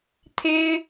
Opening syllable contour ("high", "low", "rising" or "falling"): high